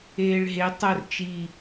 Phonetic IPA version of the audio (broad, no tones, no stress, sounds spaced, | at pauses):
eː ɭ ɦ e tˤ œ r t͡ʃ i